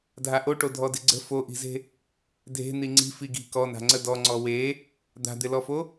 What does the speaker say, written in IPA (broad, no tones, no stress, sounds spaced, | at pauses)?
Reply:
dʱ a ʔ o ʈ o dʱ ɔ d ɪ ɡ͡ǀ ə̤ f o ʔ i̤ z e̤ | dʱ e̤ n̪ i ŋ͡ǀ i̤ f i ɡ i̤ k ɔ n a̤ ŋ͡ǀ ə d ɔ ŋ͡ǀ ɔ w e | d̪ a̤ d̪ ɪ l ɔ f o